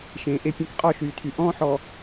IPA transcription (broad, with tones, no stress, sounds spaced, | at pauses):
ʃ ẽː˨ ʔ e˦ pʲ ẽ˦ k qʼ ɒ˦˨ ʃ yː˨ tʰ y˨ ʔ ɔ̃ː˦ ħ ɔː˨